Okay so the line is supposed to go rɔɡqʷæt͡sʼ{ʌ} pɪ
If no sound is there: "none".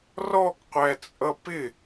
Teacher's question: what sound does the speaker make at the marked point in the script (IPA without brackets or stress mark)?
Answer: ʌ